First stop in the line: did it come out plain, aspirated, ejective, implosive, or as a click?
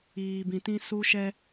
plain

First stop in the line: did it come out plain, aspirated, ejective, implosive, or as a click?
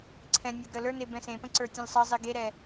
click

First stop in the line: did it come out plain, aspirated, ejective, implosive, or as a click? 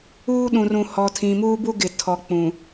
implosive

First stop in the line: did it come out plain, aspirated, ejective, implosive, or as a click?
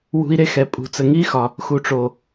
ejective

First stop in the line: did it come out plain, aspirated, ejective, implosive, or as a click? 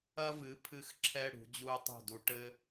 aspirated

